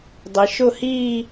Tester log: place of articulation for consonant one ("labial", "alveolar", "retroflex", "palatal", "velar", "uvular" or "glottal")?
alveolar